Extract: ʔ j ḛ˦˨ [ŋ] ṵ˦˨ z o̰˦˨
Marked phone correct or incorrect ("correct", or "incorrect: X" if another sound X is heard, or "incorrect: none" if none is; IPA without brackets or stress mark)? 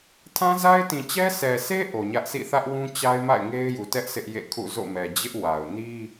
incorrect: kʰ